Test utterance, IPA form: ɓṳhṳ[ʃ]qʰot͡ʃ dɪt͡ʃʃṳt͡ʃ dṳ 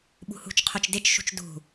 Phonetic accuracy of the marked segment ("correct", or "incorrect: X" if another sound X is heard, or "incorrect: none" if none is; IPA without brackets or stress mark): incorrect: t͡ʃ